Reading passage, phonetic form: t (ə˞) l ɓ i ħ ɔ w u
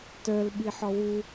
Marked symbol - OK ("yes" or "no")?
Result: yes